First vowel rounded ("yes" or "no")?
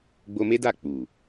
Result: yes